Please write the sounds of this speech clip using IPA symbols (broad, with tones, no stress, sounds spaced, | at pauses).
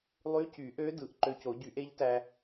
lˠ y˧˥ c y˨˩˦ ʔ ø˧˥ d ɯ˨˩˦ ʔ ǃ ø˧ c o˨˩˦ ɟ y˨˩˦ ʔ e˧˥ ʎ t æ˧